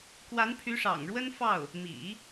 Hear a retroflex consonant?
yes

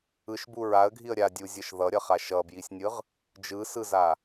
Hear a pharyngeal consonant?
no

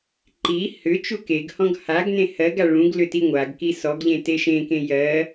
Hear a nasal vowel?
yes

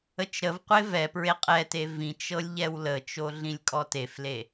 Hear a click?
no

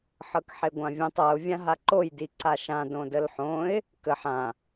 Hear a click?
yes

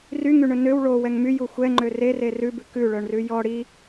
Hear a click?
yes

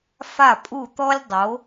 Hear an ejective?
yes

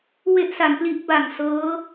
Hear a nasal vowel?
no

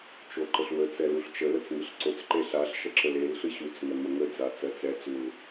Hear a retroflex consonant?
no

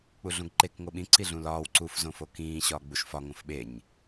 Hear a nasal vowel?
yes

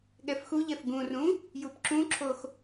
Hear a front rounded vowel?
no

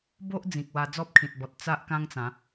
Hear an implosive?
no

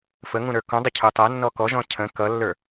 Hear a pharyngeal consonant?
no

